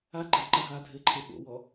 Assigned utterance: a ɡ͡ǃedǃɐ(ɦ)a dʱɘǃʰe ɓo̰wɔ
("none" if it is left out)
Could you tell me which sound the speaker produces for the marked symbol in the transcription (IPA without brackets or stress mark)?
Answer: ɦ